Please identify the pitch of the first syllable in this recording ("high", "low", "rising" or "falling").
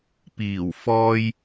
low